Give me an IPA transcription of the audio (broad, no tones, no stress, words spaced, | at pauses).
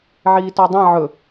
ʕiːtɔdˤã ʕɵ